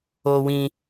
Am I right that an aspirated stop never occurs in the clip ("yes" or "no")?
yes